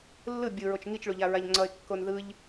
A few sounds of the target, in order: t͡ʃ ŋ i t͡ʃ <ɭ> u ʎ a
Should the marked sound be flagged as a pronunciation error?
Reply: no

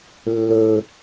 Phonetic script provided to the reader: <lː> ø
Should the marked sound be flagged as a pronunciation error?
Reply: no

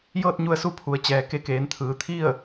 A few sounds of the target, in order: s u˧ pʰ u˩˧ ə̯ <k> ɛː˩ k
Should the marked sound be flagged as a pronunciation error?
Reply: yes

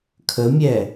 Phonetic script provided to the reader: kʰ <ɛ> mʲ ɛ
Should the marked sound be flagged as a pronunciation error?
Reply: yes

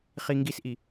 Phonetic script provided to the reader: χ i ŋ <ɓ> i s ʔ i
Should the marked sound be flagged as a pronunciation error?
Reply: yes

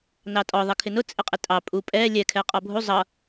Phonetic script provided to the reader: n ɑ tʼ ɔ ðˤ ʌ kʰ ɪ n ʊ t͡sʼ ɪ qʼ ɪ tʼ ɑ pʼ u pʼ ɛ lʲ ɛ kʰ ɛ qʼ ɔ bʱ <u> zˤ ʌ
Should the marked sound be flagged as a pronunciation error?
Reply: no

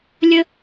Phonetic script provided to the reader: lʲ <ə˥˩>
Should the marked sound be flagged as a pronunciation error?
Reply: yes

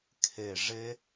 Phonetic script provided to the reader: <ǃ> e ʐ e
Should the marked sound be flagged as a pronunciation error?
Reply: yes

